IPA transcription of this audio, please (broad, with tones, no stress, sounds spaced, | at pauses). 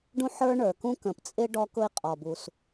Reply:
ɖ ũ˥ ħ ə˞˥ ɳ ə˞˩ k ũ˥ k ə̃˩ p t͡sʼ ɪ˥ ɖ ɔ˥ k ʊ˥ i̯ qʼ ɔ˩ b u˩ s